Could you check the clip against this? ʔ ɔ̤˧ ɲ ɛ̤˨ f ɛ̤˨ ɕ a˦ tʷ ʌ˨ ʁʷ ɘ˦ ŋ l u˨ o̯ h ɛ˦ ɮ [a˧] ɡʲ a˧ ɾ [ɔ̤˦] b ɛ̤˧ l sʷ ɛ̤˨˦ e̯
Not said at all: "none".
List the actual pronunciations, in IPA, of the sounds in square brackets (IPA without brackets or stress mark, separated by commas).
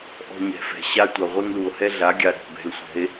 a˨˦, ɔ̤˦˨